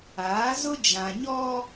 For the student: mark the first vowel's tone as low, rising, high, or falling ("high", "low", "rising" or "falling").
rising